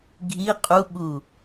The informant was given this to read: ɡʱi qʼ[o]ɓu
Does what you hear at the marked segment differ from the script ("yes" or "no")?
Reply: yes